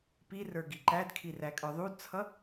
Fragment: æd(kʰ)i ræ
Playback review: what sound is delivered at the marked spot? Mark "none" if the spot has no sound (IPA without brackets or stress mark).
kʰ